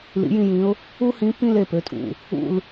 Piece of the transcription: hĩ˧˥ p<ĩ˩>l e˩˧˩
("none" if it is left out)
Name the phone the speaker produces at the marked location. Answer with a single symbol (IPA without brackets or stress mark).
ĩ˥˧